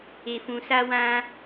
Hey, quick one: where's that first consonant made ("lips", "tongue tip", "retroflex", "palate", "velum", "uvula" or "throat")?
lips